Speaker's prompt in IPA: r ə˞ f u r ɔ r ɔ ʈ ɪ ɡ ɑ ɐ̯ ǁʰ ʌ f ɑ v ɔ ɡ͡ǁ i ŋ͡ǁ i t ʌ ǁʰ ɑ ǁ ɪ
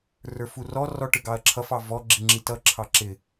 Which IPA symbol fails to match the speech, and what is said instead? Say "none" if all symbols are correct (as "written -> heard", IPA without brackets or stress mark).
none